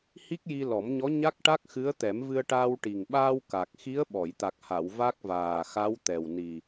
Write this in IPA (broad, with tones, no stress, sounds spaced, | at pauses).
h i˦˥ k̚ j i˧ l ɔ˨˩˦ m ɲ ɔ˧˥ ɲ a˦˥ k̚ ʈ a˦˥ k̚ x ɨ˧˥ ə̯ t̪ ɛ˨˩˦ m v ɨ˧ ə̯ ʈ aː˧ w ʈ i˨˩ ŋ ɓ aː˧ w k a˨˩ k̚ x i˧˥ ə̯ ɓ ɔ˨˩˨ j t̪ a˨˩ k̚ h a˨˩˨ w v a˦˥ k̚ v aː˨˩ x a˧˥ w t̪ ɛ˨˩ w n i˨˩